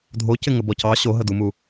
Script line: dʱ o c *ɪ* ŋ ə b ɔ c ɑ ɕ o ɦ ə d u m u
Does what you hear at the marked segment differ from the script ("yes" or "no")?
no